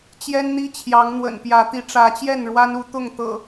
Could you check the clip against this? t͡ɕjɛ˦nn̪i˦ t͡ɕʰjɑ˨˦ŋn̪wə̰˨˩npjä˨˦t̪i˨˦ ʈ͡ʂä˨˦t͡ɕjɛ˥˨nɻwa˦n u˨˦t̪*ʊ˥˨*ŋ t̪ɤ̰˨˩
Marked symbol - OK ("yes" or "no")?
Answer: yes